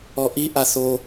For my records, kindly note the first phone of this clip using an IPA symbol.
ɔ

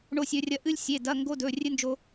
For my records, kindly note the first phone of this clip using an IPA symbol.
ɳ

